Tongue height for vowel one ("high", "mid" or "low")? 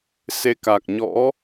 mid